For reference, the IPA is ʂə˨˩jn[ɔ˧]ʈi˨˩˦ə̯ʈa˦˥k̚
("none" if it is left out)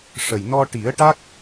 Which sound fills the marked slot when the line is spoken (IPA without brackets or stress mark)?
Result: ɔ˧